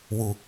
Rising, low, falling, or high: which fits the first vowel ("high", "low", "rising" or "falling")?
low